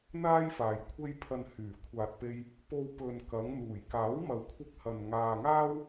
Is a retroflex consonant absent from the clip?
yes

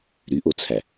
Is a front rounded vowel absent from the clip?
no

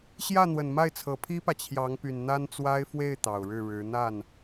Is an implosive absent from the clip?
yes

